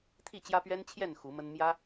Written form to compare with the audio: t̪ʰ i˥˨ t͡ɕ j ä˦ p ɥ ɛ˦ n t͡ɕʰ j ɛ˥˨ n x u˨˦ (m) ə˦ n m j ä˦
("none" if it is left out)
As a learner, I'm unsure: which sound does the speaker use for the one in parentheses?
m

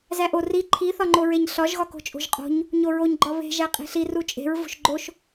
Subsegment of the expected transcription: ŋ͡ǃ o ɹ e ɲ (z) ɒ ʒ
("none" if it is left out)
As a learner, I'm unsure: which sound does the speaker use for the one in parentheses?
ɬ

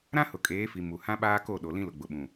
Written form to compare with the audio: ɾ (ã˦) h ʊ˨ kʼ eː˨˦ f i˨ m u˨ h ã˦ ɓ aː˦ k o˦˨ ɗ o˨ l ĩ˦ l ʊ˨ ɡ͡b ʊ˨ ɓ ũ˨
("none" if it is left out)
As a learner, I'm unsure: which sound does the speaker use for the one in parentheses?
ã˦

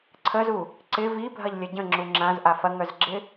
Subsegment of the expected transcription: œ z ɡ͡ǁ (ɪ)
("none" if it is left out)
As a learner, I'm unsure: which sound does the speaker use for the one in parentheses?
ɪ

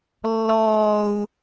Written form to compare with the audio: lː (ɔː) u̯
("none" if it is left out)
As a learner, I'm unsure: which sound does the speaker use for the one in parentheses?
ɔː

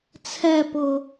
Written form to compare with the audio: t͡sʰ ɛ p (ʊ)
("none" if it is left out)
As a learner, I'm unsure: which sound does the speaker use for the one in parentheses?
ʊ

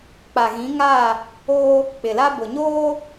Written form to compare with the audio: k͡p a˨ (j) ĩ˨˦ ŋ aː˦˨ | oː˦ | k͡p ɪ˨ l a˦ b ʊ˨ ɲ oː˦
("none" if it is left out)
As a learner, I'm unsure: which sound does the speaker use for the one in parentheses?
ɣ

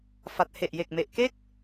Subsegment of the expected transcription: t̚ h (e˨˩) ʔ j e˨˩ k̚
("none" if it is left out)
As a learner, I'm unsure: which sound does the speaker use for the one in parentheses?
e˨˩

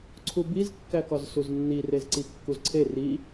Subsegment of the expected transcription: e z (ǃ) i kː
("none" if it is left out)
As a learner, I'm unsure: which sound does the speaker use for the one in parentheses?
ǀ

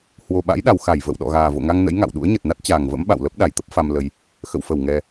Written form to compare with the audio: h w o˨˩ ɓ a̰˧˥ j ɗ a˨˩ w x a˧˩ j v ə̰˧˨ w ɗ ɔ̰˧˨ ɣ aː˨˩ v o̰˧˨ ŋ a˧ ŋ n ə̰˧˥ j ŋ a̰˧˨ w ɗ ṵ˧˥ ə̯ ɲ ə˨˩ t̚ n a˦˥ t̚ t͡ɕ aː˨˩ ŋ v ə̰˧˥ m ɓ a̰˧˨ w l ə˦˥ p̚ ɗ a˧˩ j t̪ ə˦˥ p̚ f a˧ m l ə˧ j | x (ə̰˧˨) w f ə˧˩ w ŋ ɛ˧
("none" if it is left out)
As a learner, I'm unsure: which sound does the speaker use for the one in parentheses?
ə̰˧˨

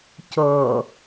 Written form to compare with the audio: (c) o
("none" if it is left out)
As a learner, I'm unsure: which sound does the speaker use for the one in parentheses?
c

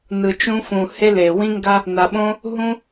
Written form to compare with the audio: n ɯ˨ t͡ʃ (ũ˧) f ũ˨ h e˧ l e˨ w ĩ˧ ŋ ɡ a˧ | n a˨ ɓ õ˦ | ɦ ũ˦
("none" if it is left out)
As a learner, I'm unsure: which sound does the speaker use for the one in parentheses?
ũ˧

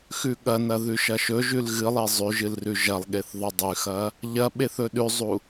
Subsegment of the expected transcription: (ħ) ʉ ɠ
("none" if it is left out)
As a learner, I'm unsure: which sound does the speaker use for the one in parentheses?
x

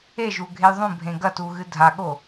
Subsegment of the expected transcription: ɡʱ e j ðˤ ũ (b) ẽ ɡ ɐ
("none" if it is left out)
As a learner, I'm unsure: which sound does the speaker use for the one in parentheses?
bʱ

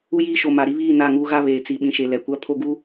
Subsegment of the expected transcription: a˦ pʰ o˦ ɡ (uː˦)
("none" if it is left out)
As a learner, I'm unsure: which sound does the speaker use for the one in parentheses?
u˦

